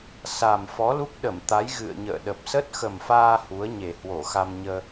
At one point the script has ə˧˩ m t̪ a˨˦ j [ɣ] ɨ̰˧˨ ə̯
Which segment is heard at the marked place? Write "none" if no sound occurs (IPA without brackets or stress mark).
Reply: ɣ